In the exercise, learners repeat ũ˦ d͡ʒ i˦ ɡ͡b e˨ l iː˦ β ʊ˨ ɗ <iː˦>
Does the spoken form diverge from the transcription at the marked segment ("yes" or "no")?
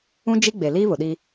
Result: yes